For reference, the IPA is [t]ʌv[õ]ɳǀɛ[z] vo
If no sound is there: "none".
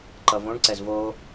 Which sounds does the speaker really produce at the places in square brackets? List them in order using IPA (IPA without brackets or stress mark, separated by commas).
ǃ, õ, z